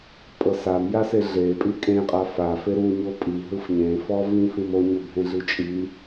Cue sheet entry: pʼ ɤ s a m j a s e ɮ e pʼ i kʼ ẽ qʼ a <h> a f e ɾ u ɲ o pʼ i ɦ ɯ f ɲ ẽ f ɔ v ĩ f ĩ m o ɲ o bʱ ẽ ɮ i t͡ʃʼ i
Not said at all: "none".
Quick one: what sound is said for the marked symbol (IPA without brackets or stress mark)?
f